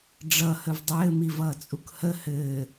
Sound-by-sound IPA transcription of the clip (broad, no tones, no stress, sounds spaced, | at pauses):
ɖ͡ʐ ʌ h ə v dˤ ɘː m i v ʌː t͡sʼ u k h ə h ɘː